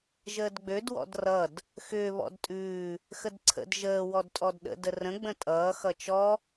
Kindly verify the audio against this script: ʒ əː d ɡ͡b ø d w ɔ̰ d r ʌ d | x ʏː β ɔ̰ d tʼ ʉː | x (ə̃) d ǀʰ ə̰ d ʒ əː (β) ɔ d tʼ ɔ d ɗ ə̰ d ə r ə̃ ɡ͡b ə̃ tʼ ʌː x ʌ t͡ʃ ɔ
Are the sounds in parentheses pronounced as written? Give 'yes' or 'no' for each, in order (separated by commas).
no, no